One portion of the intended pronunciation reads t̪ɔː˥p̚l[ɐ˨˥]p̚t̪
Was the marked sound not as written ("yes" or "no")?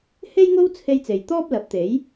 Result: no